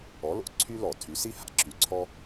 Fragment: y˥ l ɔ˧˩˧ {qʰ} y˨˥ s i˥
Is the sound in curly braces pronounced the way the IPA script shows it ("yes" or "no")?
no